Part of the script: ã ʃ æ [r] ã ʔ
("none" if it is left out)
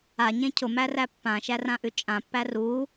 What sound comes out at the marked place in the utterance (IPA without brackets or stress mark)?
r